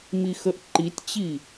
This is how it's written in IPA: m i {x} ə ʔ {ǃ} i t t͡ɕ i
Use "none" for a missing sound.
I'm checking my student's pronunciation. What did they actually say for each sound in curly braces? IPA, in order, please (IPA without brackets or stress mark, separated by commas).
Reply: x, ǃ